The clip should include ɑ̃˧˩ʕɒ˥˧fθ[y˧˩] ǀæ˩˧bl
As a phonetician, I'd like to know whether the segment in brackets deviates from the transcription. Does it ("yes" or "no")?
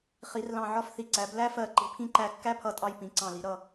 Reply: yes